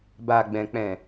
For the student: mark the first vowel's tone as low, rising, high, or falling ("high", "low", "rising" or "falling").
low